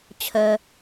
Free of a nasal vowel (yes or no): yes